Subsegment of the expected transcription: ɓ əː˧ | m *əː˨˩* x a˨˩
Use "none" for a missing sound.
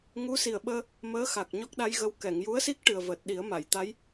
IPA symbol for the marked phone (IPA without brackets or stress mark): əː˧˥